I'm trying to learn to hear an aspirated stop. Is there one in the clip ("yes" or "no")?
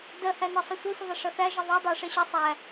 no